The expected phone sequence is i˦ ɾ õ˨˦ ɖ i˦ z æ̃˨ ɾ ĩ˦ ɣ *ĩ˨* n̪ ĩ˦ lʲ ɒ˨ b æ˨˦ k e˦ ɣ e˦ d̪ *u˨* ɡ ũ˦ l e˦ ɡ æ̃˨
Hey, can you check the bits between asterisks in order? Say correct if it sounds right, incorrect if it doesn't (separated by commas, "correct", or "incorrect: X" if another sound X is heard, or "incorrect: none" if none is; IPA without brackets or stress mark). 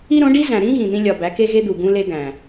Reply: correct, correct